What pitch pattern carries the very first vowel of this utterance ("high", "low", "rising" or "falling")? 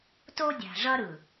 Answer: high